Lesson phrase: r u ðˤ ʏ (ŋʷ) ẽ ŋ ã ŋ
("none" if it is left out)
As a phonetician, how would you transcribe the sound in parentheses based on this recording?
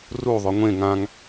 ŋʷ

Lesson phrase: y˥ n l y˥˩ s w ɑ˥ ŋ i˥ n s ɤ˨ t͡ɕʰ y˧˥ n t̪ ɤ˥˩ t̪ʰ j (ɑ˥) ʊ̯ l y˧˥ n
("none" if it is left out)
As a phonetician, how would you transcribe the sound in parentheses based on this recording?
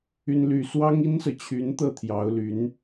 ɑ˧˥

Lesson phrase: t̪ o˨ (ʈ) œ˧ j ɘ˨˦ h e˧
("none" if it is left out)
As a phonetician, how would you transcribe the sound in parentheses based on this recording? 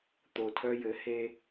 tʰ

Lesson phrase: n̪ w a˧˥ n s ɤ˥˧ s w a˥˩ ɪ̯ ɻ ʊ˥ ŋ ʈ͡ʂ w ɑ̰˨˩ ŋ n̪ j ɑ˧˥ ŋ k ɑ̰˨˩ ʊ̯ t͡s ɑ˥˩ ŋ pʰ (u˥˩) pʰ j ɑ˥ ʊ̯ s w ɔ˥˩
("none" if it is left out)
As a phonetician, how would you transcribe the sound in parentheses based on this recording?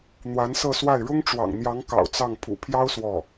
ṵ˨˩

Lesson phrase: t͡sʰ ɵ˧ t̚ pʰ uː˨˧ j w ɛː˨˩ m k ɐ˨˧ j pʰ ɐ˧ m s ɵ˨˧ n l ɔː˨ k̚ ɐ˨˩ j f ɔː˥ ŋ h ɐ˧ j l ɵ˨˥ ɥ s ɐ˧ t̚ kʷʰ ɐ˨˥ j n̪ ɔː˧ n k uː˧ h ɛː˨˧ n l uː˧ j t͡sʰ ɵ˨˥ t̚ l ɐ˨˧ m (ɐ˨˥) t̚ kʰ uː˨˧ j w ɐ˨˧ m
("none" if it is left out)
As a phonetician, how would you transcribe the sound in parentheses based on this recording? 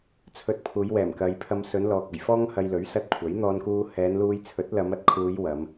ɐ˨˥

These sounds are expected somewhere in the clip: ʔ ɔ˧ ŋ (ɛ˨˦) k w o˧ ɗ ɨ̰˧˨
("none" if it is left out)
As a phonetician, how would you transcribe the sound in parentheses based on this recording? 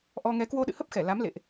ɛ˨˦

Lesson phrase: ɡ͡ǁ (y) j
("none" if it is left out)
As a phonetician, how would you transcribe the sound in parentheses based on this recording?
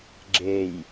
e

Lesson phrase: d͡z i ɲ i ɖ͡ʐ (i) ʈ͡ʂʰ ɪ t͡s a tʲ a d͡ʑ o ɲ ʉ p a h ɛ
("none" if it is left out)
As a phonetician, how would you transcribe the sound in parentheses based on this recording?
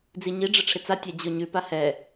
ɪ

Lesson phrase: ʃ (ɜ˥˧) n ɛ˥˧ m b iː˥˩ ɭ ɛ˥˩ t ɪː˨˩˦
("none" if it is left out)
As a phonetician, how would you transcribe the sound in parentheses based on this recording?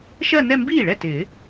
ɜ˥˧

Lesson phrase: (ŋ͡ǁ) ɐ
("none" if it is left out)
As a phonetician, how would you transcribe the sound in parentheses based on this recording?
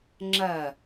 ŋ͡ǁ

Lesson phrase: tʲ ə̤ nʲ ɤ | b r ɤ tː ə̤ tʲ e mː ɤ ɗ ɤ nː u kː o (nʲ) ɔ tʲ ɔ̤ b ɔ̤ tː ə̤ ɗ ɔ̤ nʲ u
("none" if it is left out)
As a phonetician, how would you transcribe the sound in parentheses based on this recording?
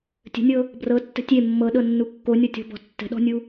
nʲ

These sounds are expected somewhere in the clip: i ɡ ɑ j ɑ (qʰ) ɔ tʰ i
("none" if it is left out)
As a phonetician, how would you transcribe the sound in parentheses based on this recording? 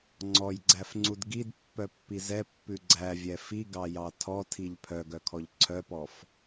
tʰ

